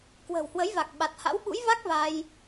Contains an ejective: no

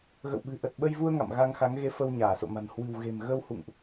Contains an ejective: no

